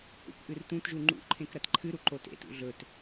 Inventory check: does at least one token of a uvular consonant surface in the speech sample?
no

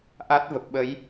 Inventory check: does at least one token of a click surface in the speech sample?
no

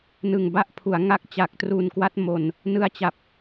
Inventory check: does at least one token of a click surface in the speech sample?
no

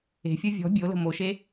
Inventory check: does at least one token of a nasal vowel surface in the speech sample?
no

